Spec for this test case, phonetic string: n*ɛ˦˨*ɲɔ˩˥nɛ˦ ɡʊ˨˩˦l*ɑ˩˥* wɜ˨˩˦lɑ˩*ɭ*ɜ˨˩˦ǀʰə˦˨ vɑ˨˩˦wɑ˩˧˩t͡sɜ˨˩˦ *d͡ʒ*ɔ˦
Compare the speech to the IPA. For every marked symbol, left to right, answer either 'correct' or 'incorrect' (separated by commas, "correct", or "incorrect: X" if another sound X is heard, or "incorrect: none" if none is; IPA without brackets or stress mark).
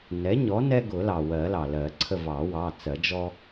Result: incorrect: ɛ˩˥, incorrect: ɑ˩, incorrect: l, correct